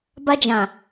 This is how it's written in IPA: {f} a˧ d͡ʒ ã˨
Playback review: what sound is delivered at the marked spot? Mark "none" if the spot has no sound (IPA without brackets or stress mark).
b